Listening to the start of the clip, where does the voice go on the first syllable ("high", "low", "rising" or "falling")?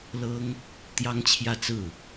high